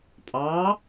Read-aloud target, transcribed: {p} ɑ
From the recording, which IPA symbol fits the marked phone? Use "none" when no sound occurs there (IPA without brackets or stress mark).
pʼ